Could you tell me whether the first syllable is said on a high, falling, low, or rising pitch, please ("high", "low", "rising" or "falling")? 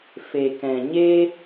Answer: low